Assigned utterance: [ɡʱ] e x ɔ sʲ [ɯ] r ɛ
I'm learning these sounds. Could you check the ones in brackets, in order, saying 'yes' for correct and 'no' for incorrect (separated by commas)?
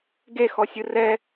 no, yes